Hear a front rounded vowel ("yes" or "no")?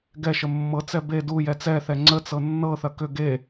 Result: yes